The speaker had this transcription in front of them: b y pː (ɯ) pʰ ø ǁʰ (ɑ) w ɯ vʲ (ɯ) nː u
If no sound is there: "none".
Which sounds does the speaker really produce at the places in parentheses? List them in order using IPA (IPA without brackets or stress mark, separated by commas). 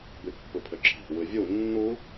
ɯ, ɑ̤, u